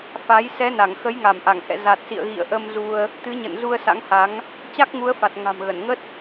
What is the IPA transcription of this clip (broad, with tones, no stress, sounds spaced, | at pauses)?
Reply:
f a˨˦ j s ɛ˨˦ n a˧˩ ŋ x ə˨˦ j ŋ a˧˩ m ʔ a˧˩ ŋ h ɛ̰˧˨ z a˨˩ t̚ s ḭ˧˨ ə̯ ɣ ḭ˧˨ ə̯ ʔ ə˧ m z u˧ ə̯ | t̪ ɨ˨˦ ɲ ə̰˧˨ n z u˧ ə̯ s a̰˧˥ ŋ h a˨˦ ŋ | t͡ɕ a˦˥ k̚ ŋ u˨˦ ə̯ f a˨˩ t̚ ŋ a̤˨˩ m ɣ ə˧˩ n ŋ ə˦˥ t̚